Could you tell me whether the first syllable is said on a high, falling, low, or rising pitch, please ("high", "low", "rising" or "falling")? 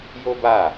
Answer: high